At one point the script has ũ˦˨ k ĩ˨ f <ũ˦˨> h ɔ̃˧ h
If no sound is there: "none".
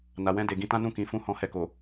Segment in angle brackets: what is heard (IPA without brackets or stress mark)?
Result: ũ˧